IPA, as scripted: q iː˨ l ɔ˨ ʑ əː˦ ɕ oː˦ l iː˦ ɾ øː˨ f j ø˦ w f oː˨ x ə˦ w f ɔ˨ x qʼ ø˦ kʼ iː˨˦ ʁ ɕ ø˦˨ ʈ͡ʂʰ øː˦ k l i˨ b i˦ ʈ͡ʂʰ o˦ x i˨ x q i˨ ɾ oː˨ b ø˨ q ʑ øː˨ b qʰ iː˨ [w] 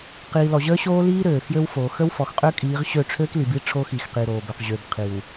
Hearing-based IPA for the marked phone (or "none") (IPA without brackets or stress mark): w